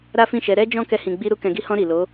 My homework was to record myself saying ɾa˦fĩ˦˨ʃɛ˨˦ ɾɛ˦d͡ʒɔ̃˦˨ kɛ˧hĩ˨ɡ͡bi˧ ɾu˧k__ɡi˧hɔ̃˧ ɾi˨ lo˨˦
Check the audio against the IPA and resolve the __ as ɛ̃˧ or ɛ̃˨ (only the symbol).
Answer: ɛ̃˨